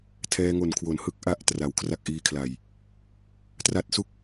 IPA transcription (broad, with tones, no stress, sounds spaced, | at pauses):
tʰ ɛː˧ ŋ o˨˩ n kʰ w o˩˦ n h ɯ˦˥ k̚ ʔ a˦˥ ʔ t r a˨˩ w kʰ r a˥˩ k̚ ʔ iː˧ kʰ l a˨˩ j | t r a˦˥ t̚ s u˥˩ k̚